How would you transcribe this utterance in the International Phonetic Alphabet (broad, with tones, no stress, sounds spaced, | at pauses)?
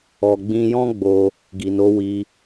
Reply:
ɔ˨ ɡ͡b ĩ˧ j ɔ̃˦ ɡ͡b o˧ | ɡ i˨ n o˨˦ w i˧